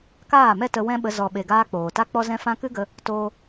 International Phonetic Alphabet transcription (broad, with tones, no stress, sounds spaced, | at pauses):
k aː˦˨ m ɛ˦ t ə˧ w ɛ̃˦ ɓ ə˧ z ɔ˨ ɓ e˨ ɡ aː˧ k͡p oː˨ t a˦ k͡p ɔ˦ z ɛ̃˦ f ã˦ k ɨ˦ ɡ ə˧ | t oː˦